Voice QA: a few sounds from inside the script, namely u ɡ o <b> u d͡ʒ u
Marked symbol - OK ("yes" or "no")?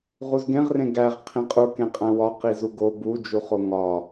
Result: yes